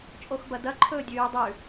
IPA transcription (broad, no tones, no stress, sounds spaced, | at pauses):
t͡ʃʼ o x b ɐ d ɐ ǃʰ ɵː dʲ ʉː dˤ ʉ